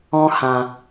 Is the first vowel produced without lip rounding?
no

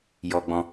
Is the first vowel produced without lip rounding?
no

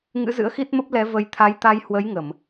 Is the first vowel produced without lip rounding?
yes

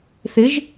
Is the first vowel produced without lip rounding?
yes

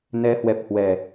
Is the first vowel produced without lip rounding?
yes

